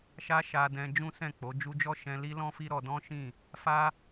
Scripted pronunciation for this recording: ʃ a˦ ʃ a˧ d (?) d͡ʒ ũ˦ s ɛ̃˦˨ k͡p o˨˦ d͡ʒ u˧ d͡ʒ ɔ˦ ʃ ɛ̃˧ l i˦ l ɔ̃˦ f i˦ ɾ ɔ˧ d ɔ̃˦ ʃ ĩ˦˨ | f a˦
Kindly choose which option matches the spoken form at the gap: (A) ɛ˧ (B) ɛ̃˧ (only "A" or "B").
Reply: B